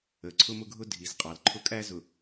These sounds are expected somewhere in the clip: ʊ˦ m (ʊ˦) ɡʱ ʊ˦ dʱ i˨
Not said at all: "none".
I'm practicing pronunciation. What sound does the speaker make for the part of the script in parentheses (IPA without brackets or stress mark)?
ʊ˦